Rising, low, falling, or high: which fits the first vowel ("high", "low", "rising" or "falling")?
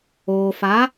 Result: low